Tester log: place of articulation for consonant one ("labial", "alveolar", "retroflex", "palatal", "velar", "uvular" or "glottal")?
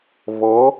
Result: labial